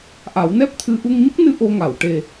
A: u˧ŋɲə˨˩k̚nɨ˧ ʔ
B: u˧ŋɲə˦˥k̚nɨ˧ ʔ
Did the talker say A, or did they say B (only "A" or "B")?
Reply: B